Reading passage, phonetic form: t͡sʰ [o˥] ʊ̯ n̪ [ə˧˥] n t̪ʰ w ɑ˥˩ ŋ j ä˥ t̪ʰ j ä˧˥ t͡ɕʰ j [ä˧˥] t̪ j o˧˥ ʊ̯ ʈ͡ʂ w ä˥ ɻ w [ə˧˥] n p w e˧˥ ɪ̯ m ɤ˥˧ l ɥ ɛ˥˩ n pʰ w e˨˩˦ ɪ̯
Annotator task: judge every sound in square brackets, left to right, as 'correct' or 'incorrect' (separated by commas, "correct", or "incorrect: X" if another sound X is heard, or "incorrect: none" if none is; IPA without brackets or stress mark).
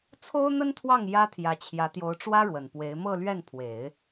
correct, incorrect: ə˥, correct, incorrect: ə˨˩